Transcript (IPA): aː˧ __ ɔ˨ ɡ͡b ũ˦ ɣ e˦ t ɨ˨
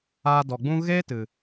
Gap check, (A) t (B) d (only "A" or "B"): B